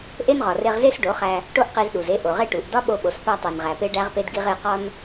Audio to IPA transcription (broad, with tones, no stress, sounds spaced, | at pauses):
ʔ e˦ n ʁ ɒ˨ r e˧ ʁ z e˦ s ɖ o˨˦ χ æ˧ | ʈ o˦ ʔ q i˧ z ɗ u˨ z e˦ ʔ o˨ ʁ e˦ ʈ u˨ ʔ d ɒ˦ ɓ o˧ ɓ o˨ s p æ˧ tˤ e˨ n ʁ æ˨ p e˧ ɖ æ˦ ʁ p e˦ d ɡ i˦ ʁ e˧ q ɒ˦ n